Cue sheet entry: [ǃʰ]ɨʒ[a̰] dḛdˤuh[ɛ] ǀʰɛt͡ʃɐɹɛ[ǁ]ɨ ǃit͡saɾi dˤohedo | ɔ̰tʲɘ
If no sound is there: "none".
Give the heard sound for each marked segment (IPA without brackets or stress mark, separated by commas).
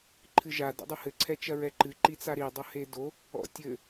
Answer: ǃʰ, a, ɘ, ǃ